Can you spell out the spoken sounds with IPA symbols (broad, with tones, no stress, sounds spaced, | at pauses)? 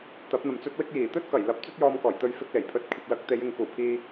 t̪ ɐ˨˥ p̚ n̪ ɐ˨ m t͡s ɵ˥ t̚ w ɪ˥ k̚ j iː˨˩ t̪ ɵ˥ t̚ k ɐ˨˩ j l ɐ˨˥ p̚ t͡s ɵ˥ t̚ j ɔː˧ m k ɔː˨˩ j t̪ ɵ˧ ɥ f ɪ˧ k̚ l e˨˩ j pʰ ɵ˧ t̚ kʷʰ ɐ˨ p̚ l ɐ˨˥ k̚ t̪ e˨˧ j ɪ˨ ŋ k uː˨˩ pʰ iː˧